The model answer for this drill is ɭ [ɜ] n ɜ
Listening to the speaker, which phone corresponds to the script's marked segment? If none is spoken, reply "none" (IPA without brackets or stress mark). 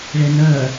ɛ